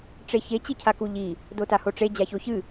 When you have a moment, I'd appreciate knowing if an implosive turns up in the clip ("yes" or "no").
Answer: no